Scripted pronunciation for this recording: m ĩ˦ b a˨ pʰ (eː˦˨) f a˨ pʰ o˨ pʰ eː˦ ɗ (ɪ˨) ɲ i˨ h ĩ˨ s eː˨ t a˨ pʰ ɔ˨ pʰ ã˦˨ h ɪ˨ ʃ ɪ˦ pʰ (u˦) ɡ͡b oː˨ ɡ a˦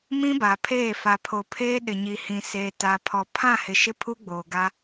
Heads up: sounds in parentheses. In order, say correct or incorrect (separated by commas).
correct, correct, correct